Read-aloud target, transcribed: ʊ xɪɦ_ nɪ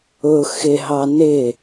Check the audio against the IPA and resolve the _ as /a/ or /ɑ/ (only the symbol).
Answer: ɑ